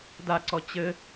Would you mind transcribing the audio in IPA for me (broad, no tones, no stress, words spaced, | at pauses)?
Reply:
daǀɔ t͡ɕɘ